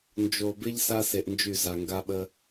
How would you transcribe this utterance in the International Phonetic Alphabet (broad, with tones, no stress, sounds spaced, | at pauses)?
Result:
n d͡ʒ o˨ b ɪ˦ ʎ s a˦ s e˨ ʔ n d͡ʒ y˦˨ z a˨ ŋ ɡ a˦ ɓ ə˦